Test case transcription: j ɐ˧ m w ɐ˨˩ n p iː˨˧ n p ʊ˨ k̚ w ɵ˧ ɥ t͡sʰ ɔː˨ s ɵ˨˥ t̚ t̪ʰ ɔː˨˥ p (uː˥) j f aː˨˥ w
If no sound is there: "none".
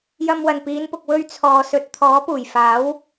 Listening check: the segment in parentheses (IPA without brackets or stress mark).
uː˨˩